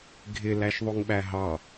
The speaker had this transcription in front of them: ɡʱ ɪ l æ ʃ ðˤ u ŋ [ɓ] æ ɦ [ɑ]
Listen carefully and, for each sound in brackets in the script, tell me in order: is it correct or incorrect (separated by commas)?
correct, correct